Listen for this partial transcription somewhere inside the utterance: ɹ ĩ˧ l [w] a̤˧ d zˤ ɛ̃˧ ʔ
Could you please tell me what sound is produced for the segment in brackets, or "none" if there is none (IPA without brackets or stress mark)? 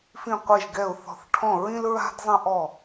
ɹ